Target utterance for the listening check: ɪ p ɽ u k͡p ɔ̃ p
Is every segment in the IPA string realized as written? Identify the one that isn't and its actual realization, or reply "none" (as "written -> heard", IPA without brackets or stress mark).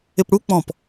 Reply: none